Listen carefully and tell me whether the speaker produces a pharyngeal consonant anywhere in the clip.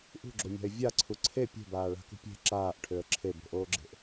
no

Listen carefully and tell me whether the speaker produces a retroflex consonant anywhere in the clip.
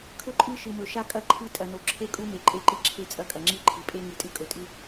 no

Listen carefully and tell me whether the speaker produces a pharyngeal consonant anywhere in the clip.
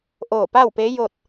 no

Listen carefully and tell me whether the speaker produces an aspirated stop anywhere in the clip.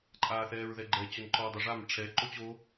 yes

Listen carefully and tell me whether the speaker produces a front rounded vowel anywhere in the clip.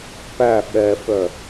yes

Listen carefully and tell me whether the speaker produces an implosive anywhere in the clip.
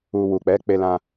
no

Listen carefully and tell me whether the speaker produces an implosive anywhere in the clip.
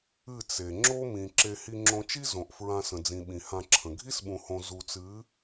yes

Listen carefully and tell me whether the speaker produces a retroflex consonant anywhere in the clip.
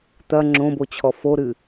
no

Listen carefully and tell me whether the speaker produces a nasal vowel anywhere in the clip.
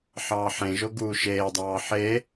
yes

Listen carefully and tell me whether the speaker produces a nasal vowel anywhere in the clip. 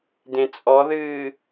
yes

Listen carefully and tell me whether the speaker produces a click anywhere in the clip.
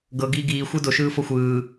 no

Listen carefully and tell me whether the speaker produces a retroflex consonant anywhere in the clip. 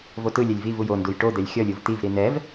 yes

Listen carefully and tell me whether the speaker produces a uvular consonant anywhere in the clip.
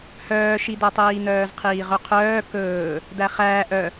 yes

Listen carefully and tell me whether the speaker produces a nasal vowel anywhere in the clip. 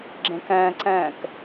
yes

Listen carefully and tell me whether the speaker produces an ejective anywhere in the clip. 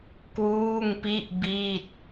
no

